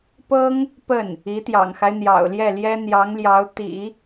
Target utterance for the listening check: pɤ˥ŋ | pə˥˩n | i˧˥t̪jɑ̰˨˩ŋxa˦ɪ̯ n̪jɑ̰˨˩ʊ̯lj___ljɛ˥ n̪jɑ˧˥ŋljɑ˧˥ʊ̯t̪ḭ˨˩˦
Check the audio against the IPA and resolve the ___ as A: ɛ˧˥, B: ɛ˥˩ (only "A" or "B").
B